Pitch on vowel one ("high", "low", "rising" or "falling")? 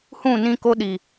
falling